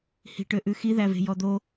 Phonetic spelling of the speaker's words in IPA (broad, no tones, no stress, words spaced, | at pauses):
hi̤ʈøʔʉxi ðæve̤jɔd̪o